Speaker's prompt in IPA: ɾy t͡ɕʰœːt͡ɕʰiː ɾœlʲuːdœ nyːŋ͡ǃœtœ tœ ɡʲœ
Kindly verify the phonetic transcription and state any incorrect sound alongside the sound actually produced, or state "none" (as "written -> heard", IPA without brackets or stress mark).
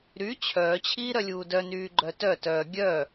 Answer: ŋ͡ǃ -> ɡ͡ǃ